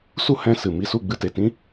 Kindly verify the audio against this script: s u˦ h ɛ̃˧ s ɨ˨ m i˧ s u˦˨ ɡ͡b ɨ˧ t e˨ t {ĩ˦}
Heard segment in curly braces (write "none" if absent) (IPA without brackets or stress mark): ĩ˦